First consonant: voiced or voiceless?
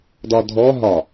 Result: voiced